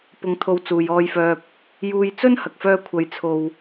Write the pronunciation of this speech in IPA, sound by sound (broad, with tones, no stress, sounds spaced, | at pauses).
p ʊ˧ ŋ t̪ʰ o˧ w t͡s uː˨ j ɔː˧ j f œː˧ p̚ | j uː˧ j t͡s ɵ˥ n h ɐ˨ k̚ f œː˧ kʷʰ ɐ˨˧ j t͡sʰ o˨ w